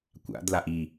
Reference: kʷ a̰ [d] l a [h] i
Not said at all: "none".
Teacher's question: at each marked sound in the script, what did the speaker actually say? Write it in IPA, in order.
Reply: d, ʔ

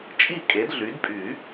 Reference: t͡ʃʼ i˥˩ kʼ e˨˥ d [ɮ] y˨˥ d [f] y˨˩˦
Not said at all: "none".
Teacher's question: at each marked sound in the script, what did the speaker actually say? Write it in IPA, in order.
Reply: ɮ, pʼ

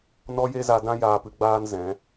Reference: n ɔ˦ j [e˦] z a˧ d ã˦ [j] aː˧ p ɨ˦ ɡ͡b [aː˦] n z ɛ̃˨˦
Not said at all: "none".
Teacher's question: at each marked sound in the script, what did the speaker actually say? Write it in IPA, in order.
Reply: e˦, j, aː˦

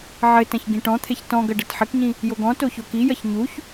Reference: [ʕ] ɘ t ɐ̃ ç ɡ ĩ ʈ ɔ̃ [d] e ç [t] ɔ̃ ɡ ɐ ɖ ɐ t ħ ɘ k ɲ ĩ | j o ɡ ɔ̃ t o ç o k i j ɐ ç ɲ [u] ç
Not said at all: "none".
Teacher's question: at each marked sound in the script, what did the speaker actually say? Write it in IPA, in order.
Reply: ʕ, t̪ʰ, t, u

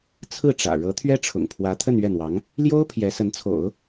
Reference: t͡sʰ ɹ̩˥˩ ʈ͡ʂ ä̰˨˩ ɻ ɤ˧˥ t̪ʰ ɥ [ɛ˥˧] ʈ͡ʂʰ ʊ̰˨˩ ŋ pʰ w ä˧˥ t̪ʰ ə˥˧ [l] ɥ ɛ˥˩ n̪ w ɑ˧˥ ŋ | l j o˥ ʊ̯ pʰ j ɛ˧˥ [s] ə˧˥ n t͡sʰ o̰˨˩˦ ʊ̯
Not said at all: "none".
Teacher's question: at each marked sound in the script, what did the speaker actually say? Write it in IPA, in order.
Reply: ɛ˥, n, s

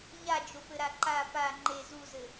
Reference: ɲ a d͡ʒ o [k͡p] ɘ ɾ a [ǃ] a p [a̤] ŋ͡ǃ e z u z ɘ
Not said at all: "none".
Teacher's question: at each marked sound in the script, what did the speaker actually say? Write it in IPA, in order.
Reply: p, ǃ, a

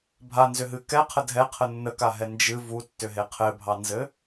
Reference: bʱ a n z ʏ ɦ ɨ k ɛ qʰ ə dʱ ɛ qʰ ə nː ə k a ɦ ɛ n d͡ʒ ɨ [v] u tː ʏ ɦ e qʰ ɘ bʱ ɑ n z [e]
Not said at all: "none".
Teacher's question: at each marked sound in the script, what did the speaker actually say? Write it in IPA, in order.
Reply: v, ɘ

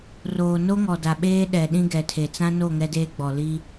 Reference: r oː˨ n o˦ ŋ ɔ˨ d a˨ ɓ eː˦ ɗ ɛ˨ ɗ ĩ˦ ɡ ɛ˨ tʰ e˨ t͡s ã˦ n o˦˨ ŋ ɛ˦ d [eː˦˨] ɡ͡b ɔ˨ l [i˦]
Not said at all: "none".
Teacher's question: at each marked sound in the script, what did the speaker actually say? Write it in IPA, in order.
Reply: eː˦, i˦

